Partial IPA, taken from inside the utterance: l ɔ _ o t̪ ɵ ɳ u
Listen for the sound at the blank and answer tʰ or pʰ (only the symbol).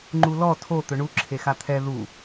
tʰ